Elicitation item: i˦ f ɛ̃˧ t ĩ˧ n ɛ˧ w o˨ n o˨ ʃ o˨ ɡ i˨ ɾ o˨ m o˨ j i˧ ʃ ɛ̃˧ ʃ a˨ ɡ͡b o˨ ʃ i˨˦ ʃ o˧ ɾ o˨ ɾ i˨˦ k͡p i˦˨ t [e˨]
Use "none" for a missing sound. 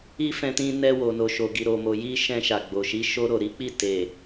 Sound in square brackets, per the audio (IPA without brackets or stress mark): e˨